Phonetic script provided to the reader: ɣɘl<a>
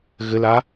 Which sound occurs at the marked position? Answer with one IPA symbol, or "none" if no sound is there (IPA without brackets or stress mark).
a